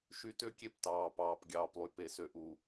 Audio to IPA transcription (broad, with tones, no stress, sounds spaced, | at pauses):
ʃ y˦ t ø˦ kʲ e˦ p t ɑː˨ p ɑː˨ p ɡʲ ɑː˨ p lˠ y˨ p e˨ s ø˨ ʔ u˨